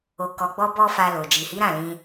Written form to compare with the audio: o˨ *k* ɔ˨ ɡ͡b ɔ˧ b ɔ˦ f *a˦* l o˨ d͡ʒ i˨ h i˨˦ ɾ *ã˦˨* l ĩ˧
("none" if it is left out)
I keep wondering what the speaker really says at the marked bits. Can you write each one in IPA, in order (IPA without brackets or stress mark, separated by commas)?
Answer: k, a˧, ã˦˨